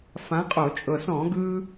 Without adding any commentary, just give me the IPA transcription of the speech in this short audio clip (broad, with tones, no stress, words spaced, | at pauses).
fã˨˥qʼo˧˩˧t͡ʃʼɤ˨˩s ɔ̃˧˩˧ɡɯ˧